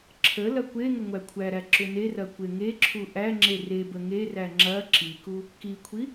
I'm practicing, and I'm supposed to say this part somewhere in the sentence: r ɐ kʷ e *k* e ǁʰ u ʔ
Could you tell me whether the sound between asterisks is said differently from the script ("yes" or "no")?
yes